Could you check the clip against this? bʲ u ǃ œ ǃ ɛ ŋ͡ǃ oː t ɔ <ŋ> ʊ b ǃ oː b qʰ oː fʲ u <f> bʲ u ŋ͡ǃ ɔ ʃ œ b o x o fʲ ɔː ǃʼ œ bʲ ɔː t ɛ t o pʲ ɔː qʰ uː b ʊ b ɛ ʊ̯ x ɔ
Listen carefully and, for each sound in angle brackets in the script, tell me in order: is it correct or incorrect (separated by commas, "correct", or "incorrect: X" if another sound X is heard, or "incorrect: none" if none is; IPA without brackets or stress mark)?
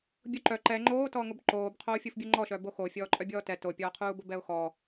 correct, correct